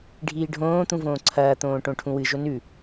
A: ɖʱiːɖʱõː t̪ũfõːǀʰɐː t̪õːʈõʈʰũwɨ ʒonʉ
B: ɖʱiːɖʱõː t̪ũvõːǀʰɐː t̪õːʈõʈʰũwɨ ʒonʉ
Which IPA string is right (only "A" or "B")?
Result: B